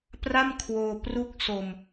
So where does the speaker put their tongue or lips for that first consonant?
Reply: lips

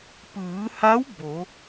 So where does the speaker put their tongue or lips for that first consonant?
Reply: lips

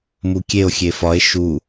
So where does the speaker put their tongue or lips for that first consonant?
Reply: lips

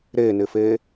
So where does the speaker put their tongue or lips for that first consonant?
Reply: tongue tip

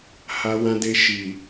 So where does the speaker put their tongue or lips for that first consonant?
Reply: throat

